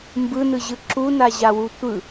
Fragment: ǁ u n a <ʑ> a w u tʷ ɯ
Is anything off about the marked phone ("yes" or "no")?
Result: no